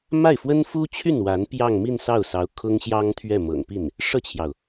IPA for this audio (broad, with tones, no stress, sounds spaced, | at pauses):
m a˥˩ ɪ̯ f w ə˥ n f u˥ t͡ɕʰ y˥˩ n w a˧˥ n p j ɑ˥˧ ŋ m i˥˧ n s ɑ˥˩ ʊ̯ s ɑ˧˥ ʊ̯ kʰ ʊ˥ ŋ ɕ j ɑ˥ ŋ t̪ʰ ɥ ɛ˥˩ m ɤ̰˨˩ ŋ p i˥˩ n | ʂ ɤ˥˩ t͡ɕʰ j ɑ˩ ʊ̯